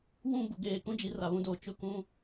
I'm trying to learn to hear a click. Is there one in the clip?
no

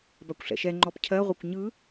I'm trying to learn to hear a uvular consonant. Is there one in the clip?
yes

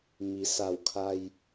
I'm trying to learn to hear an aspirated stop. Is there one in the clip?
yes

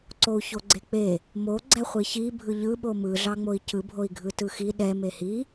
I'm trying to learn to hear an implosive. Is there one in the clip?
yes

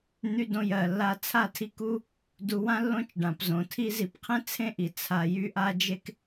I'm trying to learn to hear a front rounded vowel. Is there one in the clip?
yes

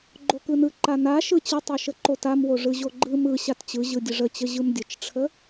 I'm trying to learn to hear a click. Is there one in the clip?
yes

